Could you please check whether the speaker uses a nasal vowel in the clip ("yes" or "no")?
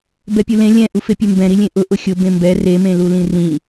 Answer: yes